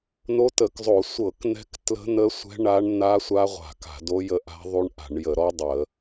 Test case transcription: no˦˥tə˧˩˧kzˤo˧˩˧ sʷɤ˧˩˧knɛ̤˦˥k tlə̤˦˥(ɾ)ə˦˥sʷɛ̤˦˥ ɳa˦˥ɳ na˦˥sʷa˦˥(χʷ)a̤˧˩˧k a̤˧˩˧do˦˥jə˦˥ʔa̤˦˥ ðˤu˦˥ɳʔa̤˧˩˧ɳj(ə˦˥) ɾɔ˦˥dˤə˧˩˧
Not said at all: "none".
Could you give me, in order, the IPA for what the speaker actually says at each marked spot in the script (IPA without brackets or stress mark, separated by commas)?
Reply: n̪, ʁʷ, ə˧˩˧